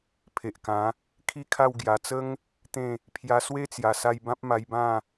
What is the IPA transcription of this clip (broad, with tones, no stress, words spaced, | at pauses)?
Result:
pʰe˨ʔkã˨˦ | kʰi˥˧kʰa˥˧w ɡja˨˩t͡sə˦ŋ | t̪ẽ˥˧ | pʰja˧swe˦t͡sja˨˩sa˧j bã˦p̚ma˧jbã˥˧